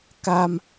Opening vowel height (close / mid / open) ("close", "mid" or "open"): open